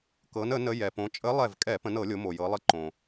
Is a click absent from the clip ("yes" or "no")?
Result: no